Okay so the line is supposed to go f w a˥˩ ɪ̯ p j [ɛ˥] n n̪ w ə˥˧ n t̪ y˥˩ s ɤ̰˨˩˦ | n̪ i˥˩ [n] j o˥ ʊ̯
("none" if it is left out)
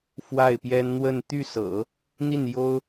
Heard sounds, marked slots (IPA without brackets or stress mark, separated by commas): ɛ˥, n